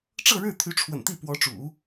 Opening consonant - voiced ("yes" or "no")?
no